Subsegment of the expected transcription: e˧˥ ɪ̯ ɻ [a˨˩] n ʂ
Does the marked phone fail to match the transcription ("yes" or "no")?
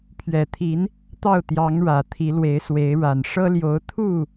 no